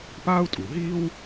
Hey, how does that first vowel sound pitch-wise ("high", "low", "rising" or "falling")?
high